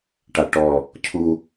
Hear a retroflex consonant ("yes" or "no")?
yes